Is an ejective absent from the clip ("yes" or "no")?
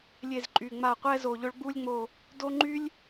no